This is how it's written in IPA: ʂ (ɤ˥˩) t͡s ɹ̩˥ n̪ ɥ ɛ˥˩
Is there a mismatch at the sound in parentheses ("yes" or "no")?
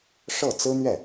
no